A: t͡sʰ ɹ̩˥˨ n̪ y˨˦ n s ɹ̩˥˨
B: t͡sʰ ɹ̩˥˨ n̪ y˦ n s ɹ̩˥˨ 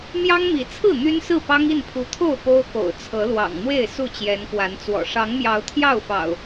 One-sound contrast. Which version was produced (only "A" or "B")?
B